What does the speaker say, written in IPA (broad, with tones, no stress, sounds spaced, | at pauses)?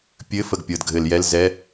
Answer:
pʲ ɘ˧˥˧ f ə˥˩ ɡ pʲ ɤ˧˩ d ɡʱ ɘ˧˩˧ l j ɛ˧˥˧ l z ɛ˧˥˧